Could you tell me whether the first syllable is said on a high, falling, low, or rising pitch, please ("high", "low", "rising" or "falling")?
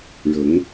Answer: rising